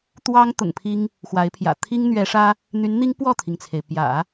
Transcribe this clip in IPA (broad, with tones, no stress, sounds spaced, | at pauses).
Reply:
t̪ w ɑ˥ ŋ t̪ ʊ̰˨˩ ŋ pʰ i˥ ŋ | x w a˧˥ ɪ̯ pʰ j ä̰˨˩ t̪ʰ i˥ ŋ n̪ ɥ ɛ˧˥ ʂ ä˥ | n̪ y˧˥ n n̪ i˥ ŋ p w ɔ˥˩ t̪ʰ i˩ ŋ t͡sʰ e˩ ɪ̯ p j ä̰˨˩˦